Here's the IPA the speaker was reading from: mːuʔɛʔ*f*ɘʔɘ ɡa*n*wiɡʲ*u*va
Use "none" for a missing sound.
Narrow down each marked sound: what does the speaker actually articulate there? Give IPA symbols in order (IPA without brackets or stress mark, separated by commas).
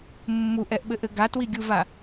ɓ, t, u